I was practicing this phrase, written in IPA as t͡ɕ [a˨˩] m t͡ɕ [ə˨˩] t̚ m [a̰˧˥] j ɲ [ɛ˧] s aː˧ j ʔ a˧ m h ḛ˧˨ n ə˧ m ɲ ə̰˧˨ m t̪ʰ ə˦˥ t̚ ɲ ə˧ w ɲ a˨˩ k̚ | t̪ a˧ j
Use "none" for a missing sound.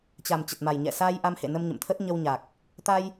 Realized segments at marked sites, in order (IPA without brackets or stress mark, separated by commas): a˨˩, ə˨˩, a˨˩, ɛ̰˧˨